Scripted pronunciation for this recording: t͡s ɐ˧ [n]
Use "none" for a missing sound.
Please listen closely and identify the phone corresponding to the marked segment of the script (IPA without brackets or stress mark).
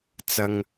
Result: ŋ